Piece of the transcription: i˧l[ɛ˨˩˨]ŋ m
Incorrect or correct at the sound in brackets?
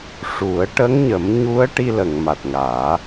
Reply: incorrect: ə˨˩˨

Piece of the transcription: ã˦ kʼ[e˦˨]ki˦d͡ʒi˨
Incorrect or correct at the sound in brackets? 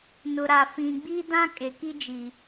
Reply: incorrect: e˨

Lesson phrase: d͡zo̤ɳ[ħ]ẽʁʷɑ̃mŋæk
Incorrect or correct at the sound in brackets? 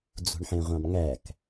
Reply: correct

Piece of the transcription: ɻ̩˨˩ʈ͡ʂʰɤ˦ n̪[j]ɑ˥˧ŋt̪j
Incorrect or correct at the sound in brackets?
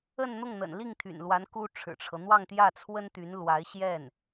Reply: incorrect: w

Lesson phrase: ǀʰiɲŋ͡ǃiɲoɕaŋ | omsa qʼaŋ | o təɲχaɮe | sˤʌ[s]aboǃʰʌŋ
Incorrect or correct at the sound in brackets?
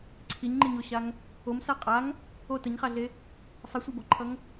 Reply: incorrect: sʷ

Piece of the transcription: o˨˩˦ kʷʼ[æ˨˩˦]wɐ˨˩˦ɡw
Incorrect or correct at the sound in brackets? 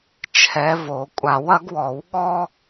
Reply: incorrect: a˨˩˦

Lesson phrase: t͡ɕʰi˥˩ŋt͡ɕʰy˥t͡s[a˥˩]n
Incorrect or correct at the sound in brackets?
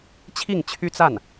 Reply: correct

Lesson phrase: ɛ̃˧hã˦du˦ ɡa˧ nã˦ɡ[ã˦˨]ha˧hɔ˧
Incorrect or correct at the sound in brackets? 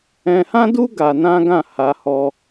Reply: correct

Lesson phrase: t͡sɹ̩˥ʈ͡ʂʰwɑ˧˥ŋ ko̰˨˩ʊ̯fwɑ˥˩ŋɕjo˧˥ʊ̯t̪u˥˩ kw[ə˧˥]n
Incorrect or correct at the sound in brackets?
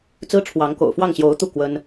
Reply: incorrect: ə˥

